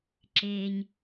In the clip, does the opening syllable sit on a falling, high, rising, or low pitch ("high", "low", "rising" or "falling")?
low